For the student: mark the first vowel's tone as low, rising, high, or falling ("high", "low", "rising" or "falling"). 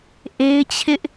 high